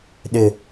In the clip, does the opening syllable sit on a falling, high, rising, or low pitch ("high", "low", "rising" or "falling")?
high